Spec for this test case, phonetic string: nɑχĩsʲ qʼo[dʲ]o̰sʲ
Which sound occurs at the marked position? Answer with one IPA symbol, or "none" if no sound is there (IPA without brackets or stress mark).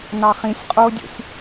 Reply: dʲ